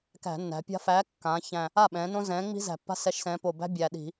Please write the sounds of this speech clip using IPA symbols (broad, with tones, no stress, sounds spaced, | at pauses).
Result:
k æ̤˧˩˧ nː æ̤˩˧ pʲ a̤˦ f æː˨˥ kː ãː˩˧ ç æ̃˨˩ | a˥˩ ɓ ɛ̃ː˩˧ n õ˦ z ɛ̃ː˨˥ ŋ͡m i̤˦ z æ̤˨˩ pː a̤˦ s ɛ˨˥ ʃ s ɛ̃ː˩˧ p o˨˩ b æ̤˦ bʲ æː˨˩ ɗ i̤˧˩˧